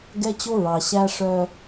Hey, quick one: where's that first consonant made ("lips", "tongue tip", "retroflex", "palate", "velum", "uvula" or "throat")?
velum